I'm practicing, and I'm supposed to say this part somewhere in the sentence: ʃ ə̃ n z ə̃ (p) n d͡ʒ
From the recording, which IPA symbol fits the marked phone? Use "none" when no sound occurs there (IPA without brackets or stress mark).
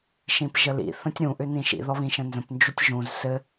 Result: p